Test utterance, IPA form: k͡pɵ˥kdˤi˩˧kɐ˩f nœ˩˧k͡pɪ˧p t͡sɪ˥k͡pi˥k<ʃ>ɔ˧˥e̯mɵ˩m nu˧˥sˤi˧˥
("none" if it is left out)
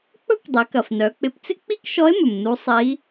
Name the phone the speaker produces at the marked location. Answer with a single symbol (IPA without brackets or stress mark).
ʃ